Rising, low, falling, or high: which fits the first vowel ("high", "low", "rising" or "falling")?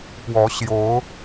rising